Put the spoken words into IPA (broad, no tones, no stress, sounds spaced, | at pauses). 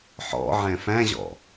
ħ ɔ̰ ʕ ɛ̃ f æ̃ ʑ ɔ̰